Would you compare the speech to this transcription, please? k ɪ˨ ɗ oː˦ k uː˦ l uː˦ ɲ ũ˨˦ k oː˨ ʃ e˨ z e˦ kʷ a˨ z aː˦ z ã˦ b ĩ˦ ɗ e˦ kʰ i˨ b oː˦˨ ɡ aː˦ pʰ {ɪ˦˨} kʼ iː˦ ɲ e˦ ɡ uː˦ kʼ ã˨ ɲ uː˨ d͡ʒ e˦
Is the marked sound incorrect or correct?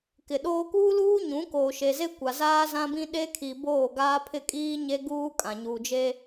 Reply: correct